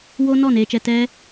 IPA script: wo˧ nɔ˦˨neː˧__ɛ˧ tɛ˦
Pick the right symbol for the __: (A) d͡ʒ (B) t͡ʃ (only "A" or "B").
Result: B